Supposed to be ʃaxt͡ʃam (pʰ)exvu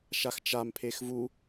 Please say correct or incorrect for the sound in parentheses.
correct